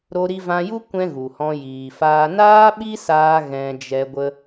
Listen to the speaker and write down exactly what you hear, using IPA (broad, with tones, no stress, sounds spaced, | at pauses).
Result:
ɾ o˧ ɾ i˧ v ã˧ j u˦ kʷ ɛ̃˦ ɣ u˨ h ɔ̃˧ j iː˨ f aː˧ n aː˦ ɓ i˦ s aː˧ ɣ ɛ̃˧ d͡ʒ ɛ˧ ɡʷ ə˧